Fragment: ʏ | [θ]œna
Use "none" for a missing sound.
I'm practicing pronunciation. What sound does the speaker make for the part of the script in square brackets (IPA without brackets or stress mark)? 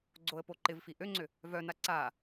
v